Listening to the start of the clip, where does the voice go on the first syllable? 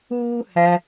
high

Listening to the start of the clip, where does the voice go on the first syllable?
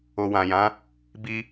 low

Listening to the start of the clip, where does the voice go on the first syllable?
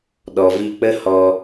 low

